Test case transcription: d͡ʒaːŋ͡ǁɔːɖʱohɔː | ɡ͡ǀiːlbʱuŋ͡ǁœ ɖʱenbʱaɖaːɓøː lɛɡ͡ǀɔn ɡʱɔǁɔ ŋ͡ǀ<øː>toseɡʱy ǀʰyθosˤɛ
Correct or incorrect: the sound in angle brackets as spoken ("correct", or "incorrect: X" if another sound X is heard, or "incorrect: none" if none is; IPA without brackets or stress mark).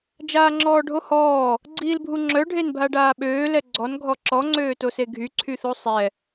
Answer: correct